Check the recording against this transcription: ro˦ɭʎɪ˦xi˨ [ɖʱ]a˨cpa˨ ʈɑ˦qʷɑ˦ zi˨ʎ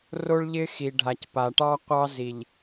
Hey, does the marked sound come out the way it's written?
yes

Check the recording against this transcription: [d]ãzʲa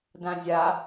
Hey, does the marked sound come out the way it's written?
yes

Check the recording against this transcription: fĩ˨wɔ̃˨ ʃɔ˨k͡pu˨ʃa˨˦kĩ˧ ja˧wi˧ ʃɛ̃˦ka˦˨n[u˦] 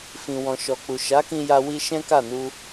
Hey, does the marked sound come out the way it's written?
no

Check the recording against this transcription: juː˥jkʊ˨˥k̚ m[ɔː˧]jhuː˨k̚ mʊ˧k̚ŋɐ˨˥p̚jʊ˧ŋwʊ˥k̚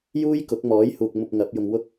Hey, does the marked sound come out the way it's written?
no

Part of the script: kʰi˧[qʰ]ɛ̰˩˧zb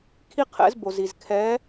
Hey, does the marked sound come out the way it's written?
yes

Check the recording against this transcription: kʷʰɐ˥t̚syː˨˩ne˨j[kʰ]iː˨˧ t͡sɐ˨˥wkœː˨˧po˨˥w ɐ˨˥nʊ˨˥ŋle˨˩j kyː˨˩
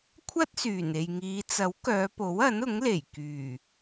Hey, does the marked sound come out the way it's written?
no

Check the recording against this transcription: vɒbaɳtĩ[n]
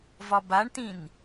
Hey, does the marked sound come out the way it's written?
yes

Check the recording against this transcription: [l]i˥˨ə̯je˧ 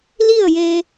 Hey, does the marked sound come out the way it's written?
yes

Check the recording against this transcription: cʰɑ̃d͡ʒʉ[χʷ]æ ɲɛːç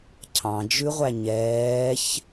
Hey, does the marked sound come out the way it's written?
no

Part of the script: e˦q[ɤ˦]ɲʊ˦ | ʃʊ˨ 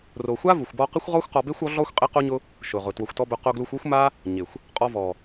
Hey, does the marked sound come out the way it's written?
no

